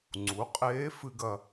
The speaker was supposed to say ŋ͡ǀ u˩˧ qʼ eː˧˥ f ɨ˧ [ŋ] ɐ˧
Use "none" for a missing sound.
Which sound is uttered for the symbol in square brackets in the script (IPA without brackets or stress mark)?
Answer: ɡ